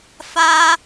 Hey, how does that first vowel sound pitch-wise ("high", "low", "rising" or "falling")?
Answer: high